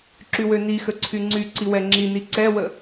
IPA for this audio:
ǁywønixə ǀʰyŋ͡ǀyǀi wɛŋ͡ǁini ǀɛwə

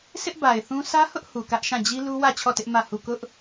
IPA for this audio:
sʰɪ˦ʔba˨ɪ̯θũ˦ sä˦hʊ˦ʔ hu˨kä˦ʔʃã˦˨ d͡ʑi˦lu˦wä˦˨ t͡ɕʰɔ˦˨tɪ˦ʔ mä˦˨ hu˦˨ kʊ˦ʔ

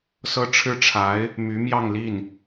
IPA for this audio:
sɤ˥ʈ͡ʂʰɻ̩˥ʈ͡ʂʰa˧˥ɪ̯ | my˧˥mjɑ˥˧ŋli˥˩n

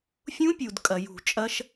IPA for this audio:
fʲũ˦˥pʲu˩d kʼɐ˩jṳ˧˩˧t͡ʃʼɐ˦˥ʃ

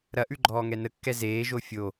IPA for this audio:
ɾɐʔʉ ɡ͡ǃɔːŋɛnəkːɛ zeːʒo fʲo

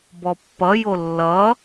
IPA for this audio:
bɔpːʌjo lːʌ

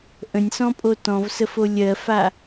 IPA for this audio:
ʔə̃nʲsɔ̃pʼo tɔ̃vsəfo lʲɜfa

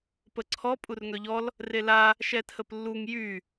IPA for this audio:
pəǀʰɔ pʼurŋœʎɔl | rela | ʃɛtʰəplːuŋ jy

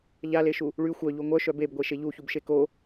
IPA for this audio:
ʎaleʃu | ɭy xʷœʎu ŋʷœʃœ bebɡʷeʃe ʎuçubʃe ko

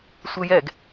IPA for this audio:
sʷɘjɛɡ

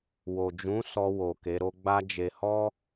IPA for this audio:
wo˨d͡ʒũ˨˦sɔ˧wo˨ ke˨˦ɾo˦ ɡ͡ba˦d͡ʒe˧ hɔ˦

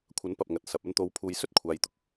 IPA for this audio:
kʷʰɐ˨˥npɐ˨p̚ŋɐ˨t̚ sɐ˨p̚ ɐ˧nt̪o˨˧w pʰuː˨˧jsɵ˥t̚ kʷʰaː˨jt̪ʊ˧k̚

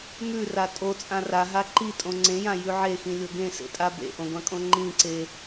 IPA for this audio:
mʉra tʼot͡sʼã raɦa ǃitʼõ ŋ͡ǀẽjãjʉ ʕexĩlʲo ɡẽsḛtʼa bḛʔõɡʷãkʼõ ŋ͡ǃĩǀe

